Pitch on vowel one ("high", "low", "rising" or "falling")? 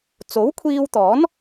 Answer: rising